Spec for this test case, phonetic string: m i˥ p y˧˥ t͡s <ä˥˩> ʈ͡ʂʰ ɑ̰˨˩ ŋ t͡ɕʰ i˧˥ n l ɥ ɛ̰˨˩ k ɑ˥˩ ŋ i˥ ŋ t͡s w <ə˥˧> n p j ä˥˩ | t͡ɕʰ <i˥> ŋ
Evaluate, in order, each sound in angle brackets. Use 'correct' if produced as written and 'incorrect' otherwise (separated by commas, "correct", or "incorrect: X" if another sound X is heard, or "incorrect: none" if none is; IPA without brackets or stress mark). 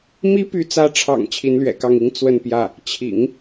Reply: incorrect: ä˧˥, correct, incorrect: ḭ˨˩˦